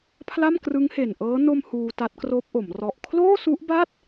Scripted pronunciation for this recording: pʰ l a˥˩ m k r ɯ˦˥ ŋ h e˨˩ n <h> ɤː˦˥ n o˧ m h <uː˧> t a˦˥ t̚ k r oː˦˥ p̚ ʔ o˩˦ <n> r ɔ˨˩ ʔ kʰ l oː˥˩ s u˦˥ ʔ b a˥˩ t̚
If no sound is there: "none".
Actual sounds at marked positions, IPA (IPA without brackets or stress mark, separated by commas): ʔ, uː˧, m